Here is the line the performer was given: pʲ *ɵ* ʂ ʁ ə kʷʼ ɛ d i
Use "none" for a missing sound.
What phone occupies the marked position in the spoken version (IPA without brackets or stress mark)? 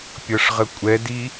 ɤ